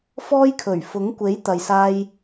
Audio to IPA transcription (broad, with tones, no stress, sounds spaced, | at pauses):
f ɔː˧ j kʰ ɵ˨˩ ɥ f ʊ˨˥ ŋ kʷ e˨˥ j t̪ ɐ˨ j s aː˧ j